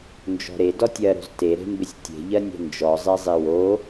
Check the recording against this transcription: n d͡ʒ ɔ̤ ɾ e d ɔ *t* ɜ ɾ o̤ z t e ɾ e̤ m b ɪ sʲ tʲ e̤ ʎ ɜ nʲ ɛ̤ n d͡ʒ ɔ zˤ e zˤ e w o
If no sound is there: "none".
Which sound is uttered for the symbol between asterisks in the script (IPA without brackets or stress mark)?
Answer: tʲ